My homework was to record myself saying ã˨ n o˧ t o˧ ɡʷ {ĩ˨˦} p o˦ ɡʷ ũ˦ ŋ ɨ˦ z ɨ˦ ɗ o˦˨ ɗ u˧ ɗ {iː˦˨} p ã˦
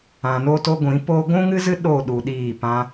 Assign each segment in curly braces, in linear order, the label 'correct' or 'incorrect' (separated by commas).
correct, correct